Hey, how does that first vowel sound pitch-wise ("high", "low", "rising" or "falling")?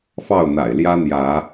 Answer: falling